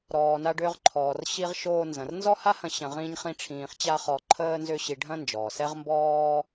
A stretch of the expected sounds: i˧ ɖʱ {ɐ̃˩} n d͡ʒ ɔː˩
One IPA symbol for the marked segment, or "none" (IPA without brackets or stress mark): ɐ̃˥